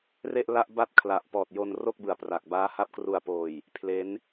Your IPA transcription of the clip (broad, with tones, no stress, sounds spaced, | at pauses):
r e˥˩ ʔ l a˥˩ ʔ b a˥˩ t̚ kʰ l a˨˩ ʔ p ɔː˨˩ t̚ j o˧ n r o˥˩ k̚ b ɯ˨˩ a̯ p r a˨˩ k̚ b aː˦˥ h a˦˥ p̚ k r u˨˩ a̯ p oː˨˩ j | pʰ l e˦˥ n